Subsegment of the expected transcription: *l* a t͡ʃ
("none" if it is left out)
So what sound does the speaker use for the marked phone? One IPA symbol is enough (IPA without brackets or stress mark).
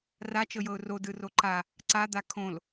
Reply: r